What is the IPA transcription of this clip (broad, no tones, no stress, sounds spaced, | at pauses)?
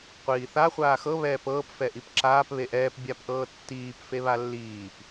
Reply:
qʷ iː θ a χʷ aː x ɤ β ɛː p ɤː p f ɛ ʔ i p ǁ aː p β e ʔ ɛː p bʲ a p ʔ ɤː tː iː p f e β a lː iː p